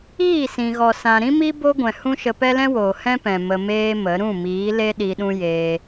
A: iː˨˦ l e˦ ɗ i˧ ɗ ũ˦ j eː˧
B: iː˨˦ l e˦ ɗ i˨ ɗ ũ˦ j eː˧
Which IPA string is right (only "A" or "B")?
A